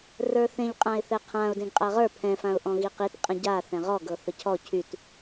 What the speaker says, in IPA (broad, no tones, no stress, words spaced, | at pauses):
rə˞θẽʎ qʼãɪ̯θɛqʰãʊ̯ dẽɡqʼaʁə˞ pʰɛ̃ fãʊ̯ʔɔ̃ɣiqit qʼə̃ɟa θɛ̃ʁɔ ɡɤθəcʰɔ cʰyt